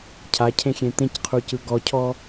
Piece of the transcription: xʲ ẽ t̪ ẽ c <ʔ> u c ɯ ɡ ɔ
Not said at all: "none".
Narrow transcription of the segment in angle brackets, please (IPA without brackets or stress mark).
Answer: qʰ